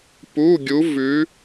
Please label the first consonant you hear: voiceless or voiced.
voiceless